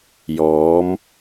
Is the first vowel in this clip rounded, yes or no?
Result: yes